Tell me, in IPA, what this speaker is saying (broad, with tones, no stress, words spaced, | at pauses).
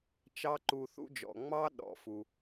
t͡ʃɑ˥ǃu˧ θṵ˥d͡ʒɔ̰˩ ŋ͡mɑ˥ ɗɔ̰˩fu˩